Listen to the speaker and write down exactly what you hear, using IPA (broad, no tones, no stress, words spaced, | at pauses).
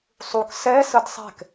sˤuk sɛ sədsˤɛ̤k